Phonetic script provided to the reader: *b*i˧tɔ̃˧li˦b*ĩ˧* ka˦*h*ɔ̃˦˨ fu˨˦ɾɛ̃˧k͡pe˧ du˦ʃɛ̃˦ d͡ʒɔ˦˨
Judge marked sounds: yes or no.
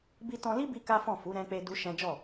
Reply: yes, no, no

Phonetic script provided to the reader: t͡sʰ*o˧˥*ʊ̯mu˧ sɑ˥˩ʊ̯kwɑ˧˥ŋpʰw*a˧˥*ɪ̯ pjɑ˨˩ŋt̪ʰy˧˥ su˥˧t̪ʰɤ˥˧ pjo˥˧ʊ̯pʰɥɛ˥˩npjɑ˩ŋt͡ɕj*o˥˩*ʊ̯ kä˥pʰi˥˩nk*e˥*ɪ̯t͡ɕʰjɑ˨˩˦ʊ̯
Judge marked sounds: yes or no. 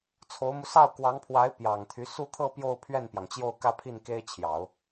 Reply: yes, yes, yes, yes

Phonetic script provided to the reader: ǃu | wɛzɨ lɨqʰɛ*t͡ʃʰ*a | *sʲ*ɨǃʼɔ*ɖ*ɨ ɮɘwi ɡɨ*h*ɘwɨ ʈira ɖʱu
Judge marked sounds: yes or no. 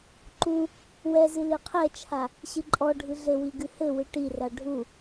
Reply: yes, no, no, yes

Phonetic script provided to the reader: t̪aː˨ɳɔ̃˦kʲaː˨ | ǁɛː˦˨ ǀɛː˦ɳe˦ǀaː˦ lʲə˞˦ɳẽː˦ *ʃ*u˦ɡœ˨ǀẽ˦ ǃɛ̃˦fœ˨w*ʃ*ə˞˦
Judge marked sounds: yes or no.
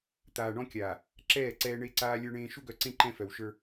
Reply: yes, yes

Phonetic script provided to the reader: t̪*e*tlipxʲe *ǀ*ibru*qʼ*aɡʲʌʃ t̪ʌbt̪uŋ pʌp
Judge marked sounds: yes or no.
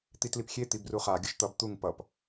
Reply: no, no, no

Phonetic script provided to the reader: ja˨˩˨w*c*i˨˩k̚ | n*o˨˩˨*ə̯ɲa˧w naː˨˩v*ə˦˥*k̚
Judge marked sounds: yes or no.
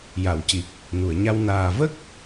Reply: yes, no, yes

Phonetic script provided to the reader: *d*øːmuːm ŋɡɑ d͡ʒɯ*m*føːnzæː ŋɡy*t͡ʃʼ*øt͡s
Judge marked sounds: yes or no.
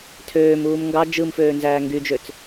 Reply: no, yes, no

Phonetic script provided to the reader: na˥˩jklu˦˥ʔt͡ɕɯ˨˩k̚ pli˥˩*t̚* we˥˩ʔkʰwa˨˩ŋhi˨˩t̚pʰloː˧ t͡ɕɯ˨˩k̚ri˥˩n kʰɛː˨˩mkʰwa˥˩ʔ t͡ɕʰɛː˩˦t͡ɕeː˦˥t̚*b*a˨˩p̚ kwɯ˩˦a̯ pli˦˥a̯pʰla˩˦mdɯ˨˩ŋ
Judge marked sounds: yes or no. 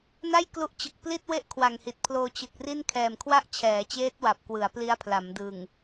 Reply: yes, no

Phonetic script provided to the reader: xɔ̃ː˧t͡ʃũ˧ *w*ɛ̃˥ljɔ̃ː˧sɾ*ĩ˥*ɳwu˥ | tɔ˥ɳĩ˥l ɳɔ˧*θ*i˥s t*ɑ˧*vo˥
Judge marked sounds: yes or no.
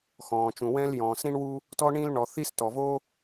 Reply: yes, yes, yes, no

